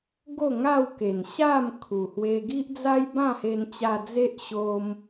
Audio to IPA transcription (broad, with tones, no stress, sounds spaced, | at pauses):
ɡ o˥˧ ŋ a˥˧ w k e˨˩ n ɕ a˥˧ m kʰ u˨˩ h w e˧ ɡ i˦ ʔ d͡z a˦ j b ã˥˧ h e˧ n t͡ɕ a˧ d͡z e˦ ʔ ɕ o˧ m